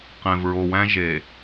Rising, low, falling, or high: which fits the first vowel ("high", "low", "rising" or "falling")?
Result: low